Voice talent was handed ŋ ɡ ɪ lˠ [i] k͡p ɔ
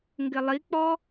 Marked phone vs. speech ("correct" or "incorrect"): correct